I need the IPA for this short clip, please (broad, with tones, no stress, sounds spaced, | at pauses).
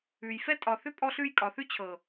ʉ˨ j f ɛ˦ tʼ ɒ˨ θ ʏ˦ pʼ ɔ˦ ɬ ʉ˦ j kʼ ɒ˨ θ ʉ˦ t͡ɕʰ ɤ˨